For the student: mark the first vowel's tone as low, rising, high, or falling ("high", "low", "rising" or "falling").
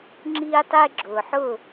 high